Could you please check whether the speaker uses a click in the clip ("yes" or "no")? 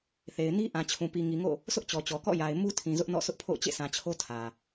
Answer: no